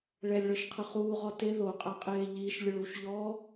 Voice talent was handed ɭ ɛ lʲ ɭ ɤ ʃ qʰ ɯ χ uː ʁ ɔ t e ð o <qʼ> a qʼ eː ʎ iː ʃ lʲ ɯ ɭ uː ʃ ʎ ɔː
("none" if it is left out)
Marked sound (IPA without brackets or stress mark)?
qʼ